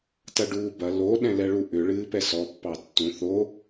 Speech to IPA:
tɐɖuːbɐ lo ɗɛ̃lɛɭuʔʏ ɭɨːpɛsɔ pːɑtːũ θo

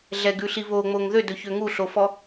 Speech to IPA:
ɮɛɡʉɬi βoŋ͡moŋ ðødɵçø ŋuɬofɔ

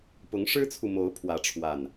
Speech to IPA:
pʊ˨˦ŋʂɻ̩˦t͡sʰu˨ mo˨˦ʊ̯pʰwä˨˦ʈ͡ʂʰwa˨˩n

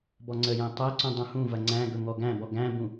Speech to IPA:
bɔŋ͡ǀəjæ̃ tˤæǀũ dˤũhũvɐ ŋ͡ǀæ̃ ɡɵŋɔɡæ̃bɔ ɡæ̃bũ

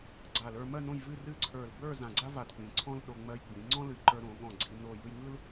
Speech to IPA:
ɡ͡ǀa˧˩lə˞˧mɜ˥˧ nõ˥˧jvɨ˥˧rɨ˥˧ ǀʰə˞˧˩lbə˞˥˧ zã˧˩ɡ͡ǀa˥va˧˩d k͡pĩ˩˧ǀʰɔ̃˥lɗo˧ ŋ͡mɜ˧jɡ͡bĩ˩˧ ŋ͡ǀɔ̃˥lɨ˧˩ǃə˞˧ ɾõ˩˧ɠɔ̃˧˩ ɡ͡ǀi˧ no˧˩jɯ˧j ŋɯ˥l

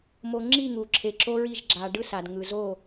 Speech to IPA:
mo˨ ŋ͡ǁi˦˨ŋu˨ǁʰe˨ ǁo˦ɹi˦˨ʒ ɡ͡ǁa˨ ɖɯ˦sa˨d ŋɯ˨zo˦˨

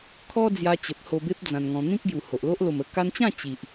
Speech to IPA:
kʰɔ˦ d͡zja˧t͡ɕə˨p̚ho˧be˦p̚ d͡zã˧nŋɔ̃˧ n̪ĩ˦k̚ɡju˨˩ho˨ʔlo˦ʔ lo˨˩mə˧ka˧nt͡ɕã˥˧ t͡ɕi˨ʔ

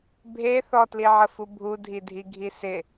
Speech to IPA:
bʱe θɔtliʕəfu bʱudʱidʱiɡʱi sɪ

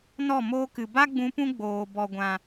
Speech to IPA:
nɔ˦˨moː˦kɨ˨ ba˦ ɡ͡bũ˧pũ˦ ɡ͡boː˨ bɔ˨ɡʷã˨

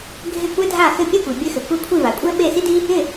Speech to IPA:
ɡʱɪ˥˩kʷɛ˥ dʱa˥˩xɘ˥˩ pʲe˥˩kʷi˩bʲɘ˧xɘ˩ kʷɛ˥˩kʷʰi˥˩ va˩kʷʼɛ˥ ɓe˥˩si˥di˥ | ɪ˥˩

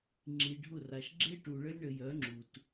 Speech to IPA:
ŋ͡ǁi˨ɖʱʊ˦˨ra˨ʃ ɡ͡ǁe˦ʈu˨ɭə˦lʲ ɳə˨jœ˨˦ŋ͡ǁu˨t

